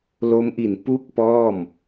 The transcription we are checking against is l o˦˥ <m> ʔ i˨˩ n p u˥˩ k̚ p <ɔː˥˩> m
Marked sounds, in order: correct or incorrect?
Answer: correct, correct

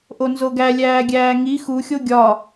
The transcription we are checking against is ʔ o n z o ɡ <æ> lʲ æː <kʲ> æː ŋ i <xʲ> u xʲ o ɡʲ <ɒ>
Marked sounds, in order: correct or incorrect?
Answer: correct, incorrect, incorrect, correct

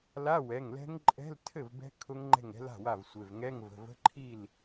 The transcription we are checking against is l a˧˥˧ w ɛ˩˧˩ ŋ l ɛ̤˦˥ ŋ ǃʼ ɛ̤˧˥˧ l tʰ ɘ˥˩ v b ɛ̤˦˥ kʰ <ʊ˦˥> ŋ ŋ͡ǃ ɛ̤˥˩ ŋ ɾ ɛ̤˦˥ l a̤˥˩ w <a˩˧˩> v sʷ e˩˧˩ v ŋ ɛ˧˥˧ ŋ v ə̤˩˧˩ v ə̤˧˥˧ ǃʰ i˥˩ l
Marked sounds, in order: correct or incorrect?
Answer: correct, incorrect

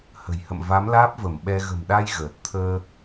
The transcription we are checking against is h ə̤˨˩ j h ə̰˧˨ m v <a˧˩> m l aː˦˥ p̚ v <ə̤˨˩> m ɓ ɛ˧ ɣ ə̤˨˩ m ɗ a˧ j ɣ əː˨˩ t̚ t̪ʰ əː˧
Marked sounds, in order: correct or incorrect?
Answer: incorrect, incorrect

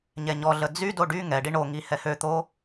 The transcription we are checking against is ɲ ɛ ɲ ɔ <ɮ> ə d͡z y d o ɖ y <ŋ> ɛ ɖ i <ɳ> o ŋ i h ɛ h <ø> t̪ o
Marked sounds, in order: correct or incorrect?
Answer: correct, correct, correct, correct

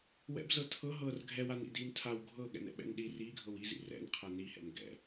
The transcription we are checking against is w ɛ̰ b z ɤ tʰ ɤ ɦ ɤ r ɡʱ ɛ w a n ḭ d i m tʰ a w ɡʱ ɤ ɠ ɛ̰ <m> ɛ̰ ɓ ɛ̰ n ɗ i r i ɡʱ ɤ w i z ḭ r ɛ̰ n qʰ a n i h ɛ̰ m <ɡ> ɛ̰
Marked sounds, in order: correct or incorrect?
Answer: incorrect, correct

